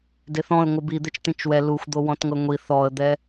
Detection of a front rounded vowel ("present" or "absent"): absent